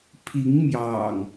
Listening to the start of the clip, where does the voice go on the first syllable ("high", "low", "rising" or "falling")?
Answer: rising